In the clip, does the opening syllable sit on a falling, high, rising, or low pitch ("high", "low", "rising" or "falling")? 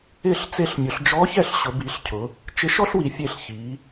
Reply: falling